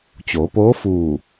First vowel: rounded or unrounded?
rounded